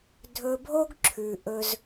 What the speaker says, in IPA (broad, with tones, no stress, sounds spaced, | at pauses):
dʱ ɵ˧ bʱ o˥ ɡ ǁʰ ʉ˩ ʔ ɵ˧ z